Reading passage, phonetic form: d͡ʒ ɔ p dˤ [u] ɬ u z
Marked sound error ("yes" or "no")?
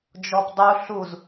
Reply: no